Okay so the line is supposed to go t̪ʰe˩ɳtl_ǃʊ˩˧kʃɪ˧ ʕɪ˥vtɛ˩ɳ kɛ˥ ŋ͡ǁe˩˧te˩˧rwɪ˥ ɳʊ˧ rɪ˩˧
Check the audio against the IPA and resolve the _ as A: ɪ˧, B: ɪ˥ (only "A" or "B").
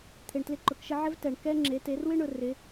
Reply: A